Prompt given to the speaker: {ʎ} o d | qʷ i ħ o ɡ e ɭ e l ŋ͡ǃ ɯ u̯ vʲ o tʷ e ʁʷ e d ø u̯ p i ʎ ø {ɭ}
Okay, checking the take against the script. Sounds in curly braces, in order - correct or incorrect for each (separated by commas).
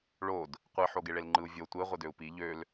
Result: incorrect, incorrect